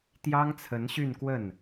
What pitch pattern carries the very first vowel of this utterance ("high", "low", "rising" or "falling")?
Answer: high